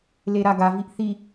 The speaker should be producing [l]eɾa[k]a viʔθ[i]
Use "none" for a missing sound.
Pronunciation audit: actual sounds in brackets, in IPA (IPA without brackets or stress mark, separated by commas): l, ɡ, i